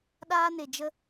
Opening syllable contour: high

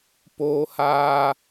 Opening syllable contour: high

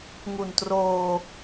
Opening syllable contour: low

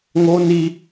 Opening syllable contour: high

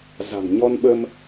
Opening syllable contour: low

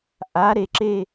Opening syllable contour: rising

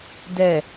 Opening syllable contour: low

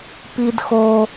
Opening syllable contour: high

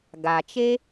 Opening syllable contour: low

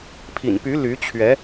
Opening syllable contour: low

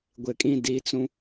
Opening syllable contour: low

